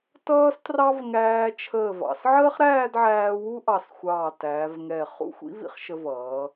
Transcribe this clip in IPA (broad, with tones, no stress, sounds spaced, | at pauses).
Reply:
t ʌː˥ s t r ɑ˥ v ŋ æː˧ t͡ʃʰ əː˧˩ v ɑ̰˩˧ s ʕ əː˥ χ ɾ æː˥˧ d ʕ æː˧ w u˥ ʔ ɑ˧˩ s xʷ ɑː˧˩ t æː˩˧ v ŋ ɛ˧˩ χ ṵ˥˧ xʷ ḭ˥ v ḭ˥˧ χ ʃ ə˧ v ʌː˩˧